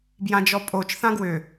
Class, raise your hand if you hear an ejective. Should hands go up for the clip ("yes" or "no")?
yes